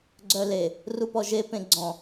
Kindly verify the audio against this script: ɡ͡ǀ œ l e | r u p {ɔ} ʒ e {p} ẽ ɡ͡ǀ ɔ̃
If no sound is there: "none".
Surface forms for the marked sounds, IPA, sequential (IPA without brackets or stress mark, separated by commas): ɔ, p